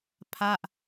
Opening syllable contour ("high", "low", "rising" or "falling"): falling